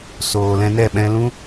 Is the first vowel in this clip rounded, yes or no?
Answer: yes